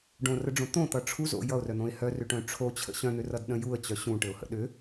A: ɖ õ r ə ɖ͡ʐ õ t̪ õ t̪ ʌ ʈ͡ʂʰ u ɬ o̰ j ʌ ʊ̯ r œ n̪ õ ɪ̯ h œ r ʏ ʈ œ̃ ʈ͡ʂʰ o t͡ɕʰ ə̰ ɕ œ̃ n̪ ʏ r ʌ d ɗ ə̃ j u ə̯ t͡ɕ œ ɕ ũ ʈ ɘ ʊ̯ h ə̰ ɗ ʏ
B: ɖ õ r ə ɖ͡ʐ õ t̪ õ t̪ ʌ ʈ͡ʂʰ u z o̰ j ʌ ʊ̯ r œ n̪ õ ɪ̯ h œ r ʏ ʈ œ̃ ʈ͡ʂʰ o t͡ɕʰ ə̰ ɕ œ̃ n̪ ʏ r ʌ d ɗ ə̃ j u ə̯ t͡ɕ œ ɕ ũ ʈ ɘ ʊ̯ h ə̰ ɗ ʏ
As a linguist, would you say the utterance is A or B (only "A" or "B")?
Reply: B